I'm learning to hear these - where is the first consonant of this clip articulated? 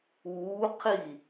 uvula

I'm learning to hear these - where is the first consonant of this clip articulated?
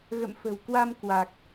velum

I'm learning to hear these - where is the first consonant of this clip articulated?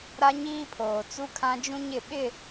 tongue tip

